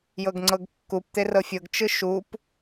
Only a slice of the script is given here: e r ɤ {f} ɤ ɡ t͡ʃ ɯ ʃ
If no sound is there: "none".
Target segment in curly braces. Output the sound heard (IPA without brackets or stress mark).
fʲ